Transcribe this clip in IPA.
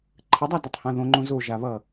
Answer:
ǃʰ ə dˤ a d ʌ tˤ h ã ð õ ŋ͡ǃ õ z o ʒ a β ʌ

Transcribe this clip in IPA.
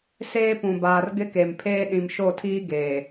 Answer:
s eː˦ p ũ˨ b aː˨ r ɡ ɪ˦ k e˨ m pʰ eː˦ ɗ ĩ˨ m ʃ o˦˨ tʰ iː˦ ɡ eː˨

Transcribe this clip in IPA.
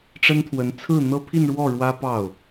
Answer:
ʈ͡ʂ ə˥ n t̪ʰ w ə˧˥ n t͡sʰ ɹ̩˥˩ n̪ ɤ˥ pʰ i˥˧ n ɻ w ɔ˥˩ ɻ w ä˥ p ɑ˥˩ ʊ̯

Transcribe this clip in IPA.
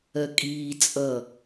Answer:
ɜ kʼ iː t͡sʼ ʌ

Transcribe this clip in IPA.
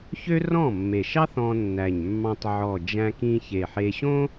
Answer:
ç ø˥ r ɔ̃˥˩ mː e˨˩ ʃ ɑ˥ θ ɔ̃˧ nː æ˨˩ ɲ mː ɑ̃˧ tˤ ʕ ɔ˨˩ d͡ʒ æ̃˧ k ĩ˧ ç e˨˩ ħ e˧ ɕ õ˥

